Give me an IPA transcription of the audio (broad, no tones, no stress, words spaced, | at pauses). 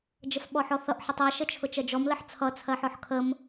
d͡ʒəfɓɔħɔθʌʔ ħətˤæ ʃət͡ʃʰʊt͡ʃɜd͡ʒɔm ləħt͡sʰʌ t͡sʰɜħɔħkʰəm